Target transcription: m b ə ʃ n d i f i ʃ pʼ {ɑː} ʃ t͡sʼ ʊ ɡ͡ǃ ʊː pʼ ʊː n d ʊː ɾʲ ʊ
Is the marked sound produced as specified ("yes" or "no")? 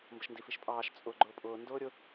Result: yes